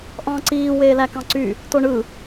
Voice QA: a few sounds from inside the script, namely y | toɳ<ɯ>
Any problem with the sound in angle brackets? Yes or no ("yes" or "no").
no